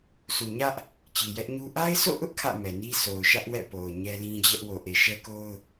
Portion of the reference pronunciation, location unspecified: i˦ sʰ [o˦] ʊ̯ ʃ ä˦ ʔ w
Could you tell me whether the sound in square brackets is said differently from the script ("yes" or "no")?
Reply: yes